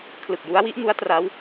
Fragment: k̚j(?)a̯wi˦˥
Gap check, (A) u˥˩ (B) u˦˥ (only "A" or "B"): B